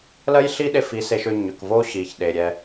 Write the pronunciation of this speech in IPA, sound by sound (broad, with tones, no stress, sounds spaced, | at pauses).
l ɜ˦ j ɬ i˦ ɗ e˧ f i˨˦ s e˧ ʃ ʏ˧ ɲ ʏ˨ k v o˦ ɕ i˨ ç ɗ e˨ ɾʲ ɛ˧